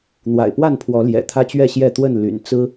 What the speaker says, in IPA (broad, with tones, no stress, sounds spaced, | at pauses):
n̪ w a̰˨˩ ɪ̯ p w a˥˨ n pʰ w ɔ˨˦ l j ɛ̰˨˩ t̪ʰ ä˦ t͡ɕ ɥ ɛ˥˨ ɕ j ɛ˥˨ t̪ w ə˥˨ n l y̰˨˩ n t͡s ɹ̩˦